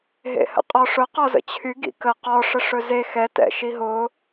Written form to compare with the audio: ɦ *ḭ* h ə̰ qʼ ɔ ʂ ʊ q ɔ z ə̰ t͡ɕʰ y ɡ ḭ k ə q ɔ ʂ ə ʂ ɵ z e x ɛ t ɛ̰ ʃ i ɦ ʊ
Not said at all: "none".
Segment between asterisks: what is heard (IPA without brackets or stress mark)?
ḛ